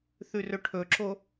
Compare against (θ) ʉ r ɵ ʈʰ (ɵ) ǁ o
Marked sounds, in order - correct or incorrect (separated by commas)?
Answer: correct, correct